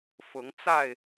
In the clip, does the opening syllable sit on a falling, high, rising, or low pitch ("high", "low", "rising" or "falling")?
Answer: rising